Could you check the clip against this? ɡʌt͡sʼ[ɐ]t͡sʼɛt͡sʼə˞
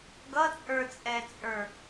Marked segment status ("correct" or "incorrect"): incorrect